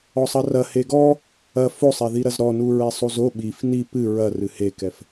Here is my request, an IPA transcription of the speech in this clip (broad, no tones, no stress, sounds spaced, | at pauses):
ɔ sˤ ɐ r ɐ h e ɡ ɔ | ɐ f o sˤ ɛ ð i ɾ ɐ z ɾ ɔ n u ɹ ɛ sˤ u z o ɓ i f n i p ɨ ɹ ɐ r ɨ h e k ɛ f